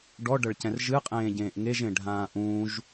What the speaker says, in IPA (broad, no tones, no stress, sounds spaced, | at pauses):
ɖ ɔ ɖ ɐ ɭ c ɛ̃ r ʒ ɨ qʼ ẽː ɟ ẽː ʔ ŋ e ʒ ẽ ɖʱ ãː ʔ ũː ʒ